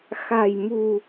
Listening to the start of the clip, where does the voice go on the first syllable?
low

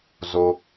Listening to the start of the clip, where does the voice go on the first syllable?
high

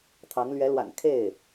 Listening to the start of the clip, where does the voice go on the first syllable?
rising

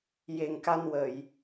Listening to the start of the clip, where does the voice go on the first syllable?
low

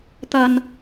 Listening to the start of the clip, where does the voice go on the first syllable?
low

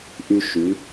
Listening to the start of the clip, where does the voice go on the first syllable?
high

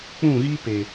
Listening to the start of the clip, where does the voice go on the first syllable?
falling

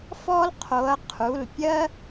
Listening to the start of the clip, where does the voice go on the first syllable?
high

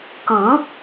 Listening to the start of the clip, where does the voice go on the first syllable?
rising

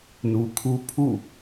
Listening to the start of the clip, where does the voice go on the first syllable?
low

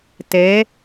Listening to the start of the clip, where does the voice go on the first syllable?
rising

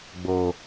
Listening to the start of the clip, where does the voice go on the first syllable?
low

